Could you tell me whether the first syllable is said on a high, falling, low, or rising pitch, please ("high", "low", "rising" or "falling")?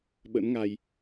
rising